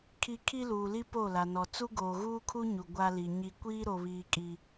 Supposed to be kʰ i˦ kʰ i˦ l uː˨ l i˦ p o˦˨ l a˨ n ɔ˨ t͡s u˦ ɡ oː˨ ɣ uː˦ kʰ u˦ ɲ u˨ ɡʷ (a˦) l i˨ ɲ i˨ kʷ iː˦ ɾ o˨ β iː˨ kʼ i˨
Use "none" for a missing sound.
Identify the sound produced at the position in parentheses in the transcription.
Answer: a˦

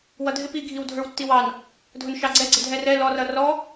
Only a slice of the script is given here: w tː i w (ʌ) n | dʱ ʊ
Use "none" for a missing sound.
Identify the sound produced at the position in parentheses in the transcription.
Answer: ɑ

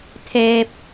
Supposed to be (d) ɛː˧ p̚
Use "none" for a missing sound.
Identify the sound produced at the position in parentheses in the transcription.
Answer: t̪ʰ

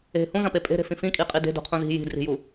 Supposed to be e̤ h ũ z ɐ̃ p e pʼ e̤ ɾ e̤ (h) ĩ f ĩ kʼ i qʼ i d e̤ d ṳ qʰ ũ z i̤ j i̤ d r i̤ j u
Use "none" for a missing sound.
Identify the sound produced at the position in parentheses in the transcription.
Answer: f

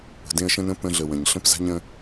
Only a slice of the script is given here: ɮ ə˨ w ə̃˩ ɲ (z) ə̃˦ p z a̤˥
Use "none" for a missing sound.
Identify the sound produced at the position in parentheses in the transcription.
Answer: ɬ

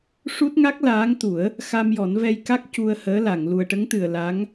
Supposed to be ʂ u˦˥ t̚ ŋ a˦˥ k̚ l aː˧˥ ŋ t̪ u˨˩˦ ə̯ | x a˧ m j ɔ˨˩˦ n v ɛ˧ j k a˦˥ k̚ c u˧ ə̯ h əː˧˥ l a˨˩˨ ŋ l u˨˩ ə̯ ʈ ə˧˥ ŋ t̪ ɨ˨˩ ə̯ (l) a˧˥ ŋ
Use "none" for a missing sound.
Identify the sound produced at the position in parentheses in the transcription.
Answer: l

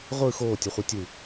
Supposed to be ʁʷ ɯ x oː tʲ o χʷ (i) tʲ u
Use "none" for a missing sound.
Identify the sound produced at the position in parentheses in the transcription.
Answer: i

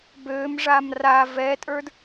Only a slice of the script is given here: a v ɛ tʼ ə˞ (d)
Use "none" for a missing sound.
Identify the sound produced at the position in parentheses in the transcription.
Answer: d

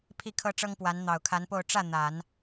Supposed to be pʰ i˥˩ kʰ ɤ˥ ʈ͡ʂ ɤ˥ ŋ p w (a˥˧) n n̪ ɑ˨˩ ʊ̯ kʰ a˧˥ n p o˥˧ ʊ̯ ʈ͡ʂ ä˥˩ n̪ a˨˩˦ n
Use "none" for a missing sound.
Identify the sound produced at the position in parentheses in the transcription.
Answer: a˧˥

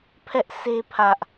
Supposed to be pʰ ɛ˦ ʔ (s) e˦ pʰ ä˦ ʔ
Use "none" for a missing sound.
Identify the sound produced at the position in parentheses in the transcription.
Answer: s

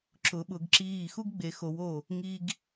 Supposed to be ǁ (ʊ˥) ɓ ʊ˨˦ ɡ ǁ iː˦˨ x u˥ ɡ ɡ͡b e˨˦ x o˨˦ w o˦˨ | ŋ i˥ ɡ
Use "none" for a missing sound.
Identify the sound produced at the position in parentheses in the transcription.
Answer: ʊ˨˦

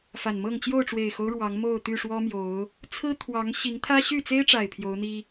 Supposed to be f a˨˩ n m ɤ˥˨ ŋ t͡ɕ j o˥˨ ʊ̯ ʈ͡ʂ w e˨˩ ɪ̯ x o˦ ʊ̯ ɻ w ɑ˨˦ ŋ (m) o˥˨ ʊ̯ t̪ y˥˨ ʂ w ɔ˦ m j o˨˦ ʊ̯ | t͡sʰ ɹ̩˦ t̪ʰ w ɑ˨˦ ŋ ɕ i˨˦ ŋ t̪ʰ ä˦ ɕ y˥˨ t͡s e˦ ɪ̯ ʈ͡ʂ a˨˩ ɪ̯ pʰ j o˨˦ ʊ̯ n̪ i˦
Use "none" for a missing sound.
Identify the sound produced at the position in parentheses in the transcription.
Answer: m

